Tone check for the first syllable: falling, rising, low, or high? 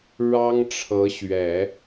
high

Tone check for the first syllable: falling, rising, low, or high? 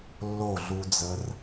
falling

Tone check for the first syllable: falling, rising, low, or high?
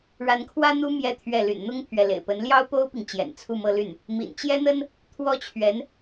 rising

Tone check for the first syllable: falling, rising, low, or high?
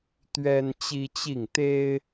high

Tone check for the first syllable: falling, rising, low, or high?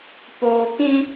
low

